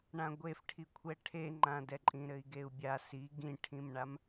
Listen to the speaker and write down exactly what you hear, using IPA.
ɳãɡʷefʈʰikʷʰɛ ʈʰeŋ͡ǃãdɛǃʼĩ ɾɘi̯ɡeu̯bʲa si ɡĩʈʰĩmɳam

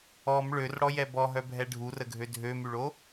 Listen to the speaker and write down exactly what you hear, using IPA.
ɔm ɭørɽɔjɛ bɔɦœbʱɛ ɖʱurəɡʱø dʱømyɭo

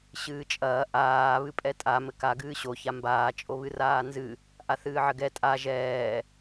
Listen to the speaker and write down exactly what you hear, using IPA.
ɕɨːt͡ʃʼɐː ʔaː βɨpʼɛtʼa mɘka ɡɨːɕo çambaː t͡ʃʼoβɨraːnzɨ | ʔaθɨːʕɘɡɛ tʼa ʒɛː

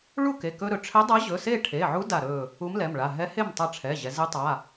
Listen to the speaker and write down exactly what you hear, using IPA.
ɭu˥˨ke˩˧˩ kɵ˧ɾɵ˩˧ ʈ͡ʂʰɛ˧˥dˤa˧˥ʑɵ˩˧˩se˥˨ ʈʰe˩˧˩ʕu˧˥ da˧˩ɾɵ˧˩ | u˧˥mlɛ˩˧˩mɭa˩˧˩ ɦɛ˧˥he˥˨mtˤa˧ʈ͡ʂʰɛ˩˧˩ ʑɛ˩˧ ze˧˥tˤa˩˧˩

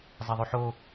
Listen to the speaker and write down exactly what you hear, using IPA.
zˤeðˤʉħo

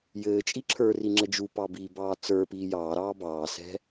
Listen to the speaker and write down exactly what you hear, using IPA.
jɘːt͡ʃʼi ǁʰə˞ri ŋ͡ǁɘd͡ʒupɑ biːbɑːt͡sə˞piː jɑːɾɑː bɑːsɛ̤

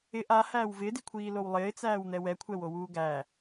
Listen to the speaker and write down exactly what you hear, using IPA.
ɪ ʔahæːw vɪːdikʷʰiːlow lˠɪːt͡sæːwn̪ɛ wɛkʷʰɛwowuː ɡæ

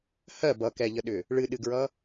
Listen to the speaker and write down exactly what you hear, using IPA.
hɜ bʌkɛʎəɗʏ | ɭɨɗɨɡɹʌ

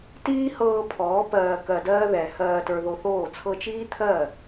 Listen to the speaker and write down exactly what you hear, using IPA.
tiː˦hɤː˧ pʰɔː˨˦ pɜː˧kɜ˧dɜː˦ ðɛ˨ hɜː˧tə˞˧ðo˧θoː˦˨ t͡sʰɤ˧t͡ʃiː˦t̪ʰɜ˦˨

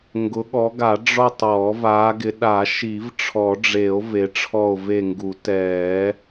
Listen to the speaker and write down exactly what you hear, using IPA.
ŋɡʊ˨˦ɠɔ˨˦ɡa˨˩˦ ɖ͡ʐɔ˦˨tˤ ɔː˨˩˦vaː˨˦ɡɪ˨˦ ɗa˨˩˦ʃi˨˩˦vʈ͡ʂʰɔ˨˩˦ɖ͡ʐe˨˩˦o̯ ve˨˦ʈ͡ʂʰɔ˦˨o̯ve˦˨ŋɡu˨˩˦ tɛː˨˩˦

